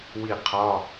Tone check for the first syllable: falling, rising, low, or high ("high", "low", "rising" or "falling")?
falling